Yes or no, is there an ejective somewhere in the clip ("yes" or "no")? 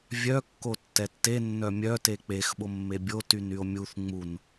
no